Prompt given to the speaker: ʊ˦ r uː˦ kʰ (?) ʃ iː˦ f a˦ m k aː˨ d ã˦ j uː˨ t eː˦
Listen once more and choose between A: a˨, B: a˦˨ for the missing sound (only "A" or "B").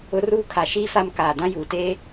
A